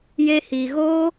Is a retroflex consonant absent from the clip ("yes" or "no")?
yes